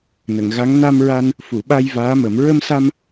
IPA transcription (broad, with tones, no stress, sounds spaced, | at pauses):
n ə˨˩˨ ŋ ɣ a˧˥ ŋ n a˧ m ɹ a˧ n | f u˨˩˨ ɓ a˧ j v aː˧˥ m ə˨˩˦ m ɹ ə˧ m s a˧ m